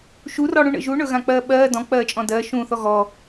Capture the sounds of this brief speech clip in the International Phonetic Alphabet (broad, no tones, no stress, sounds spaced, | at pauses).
ʃ u r ɔ ɽ ũ ɳ ə̰ ʒ u ɳ ɵ ɣ ã k͡p ɜː ɓ ɜː d ɔ̃ k͡p ɜː t͡ʃʼ ɔ̃ d ɜ ʃ ũ θ ɔ ɣ ɔ